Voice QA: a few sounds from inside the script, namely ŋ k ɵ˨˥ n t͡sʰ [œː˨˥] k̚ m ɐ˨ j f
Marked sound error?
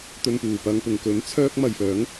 yes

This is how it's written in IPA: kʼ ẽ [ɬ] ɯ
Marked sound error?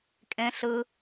no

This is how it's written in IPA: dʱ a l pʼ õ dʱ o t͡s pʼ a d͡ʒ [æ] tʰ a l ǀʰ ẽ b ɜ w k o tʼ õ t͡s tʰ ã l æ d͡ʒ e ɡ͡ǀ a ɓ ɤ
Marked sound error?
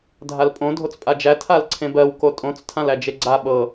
no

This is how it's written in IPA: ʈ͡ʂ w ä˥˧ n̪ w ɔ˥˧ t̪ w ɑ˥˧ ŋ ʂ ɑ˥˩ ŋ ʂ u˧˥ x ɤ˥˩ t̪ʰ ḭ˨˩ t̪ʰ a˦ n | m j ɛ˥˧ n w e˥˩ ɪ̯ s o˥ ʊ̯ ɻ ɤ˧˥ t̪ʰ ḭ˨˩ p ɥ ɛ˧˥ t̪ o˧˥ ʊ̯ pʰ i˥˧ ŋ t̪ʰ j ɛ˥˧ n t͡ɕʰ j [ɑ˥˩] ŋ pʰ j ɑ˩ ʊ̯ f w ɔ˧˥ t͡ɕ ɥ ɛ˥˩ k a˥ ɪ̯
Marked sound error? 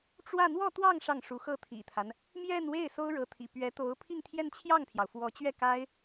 no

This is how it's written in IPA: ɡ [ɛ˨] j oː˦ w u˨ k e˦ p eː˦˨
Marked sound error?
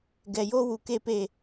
no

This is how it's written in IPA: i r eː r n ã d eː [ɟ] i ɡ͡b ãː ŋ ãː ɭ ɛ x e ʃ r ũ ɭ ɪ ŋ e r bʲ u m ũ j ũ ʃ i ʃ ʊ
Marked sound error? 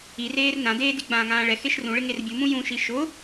yes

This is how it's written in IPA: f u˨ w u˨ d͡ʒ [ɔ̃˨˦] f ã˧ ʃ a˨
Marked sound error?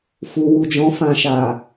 no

